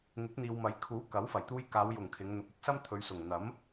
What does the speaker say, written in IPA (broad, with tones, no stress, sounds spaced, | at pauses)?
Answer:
ŋ ɪ˨˥ k̚ n̪ iː˨ w m ɐ˨˥ j kʰ uː˨˥ k ɐ˨˥ w f ɐ˨˩ j t̪ uː˧ j k aː˨˧ w j ʊ˨˩ ŋ kʰ ɪ˨˧ ŋ n̪ ʊ˨˥ k̚ ʊ˨ k̚ s ɐ˥ m t̪ʰ ɵ˨˧ ɥ s ʊ˨˩ ŋ n̪ ɐ˨˥ m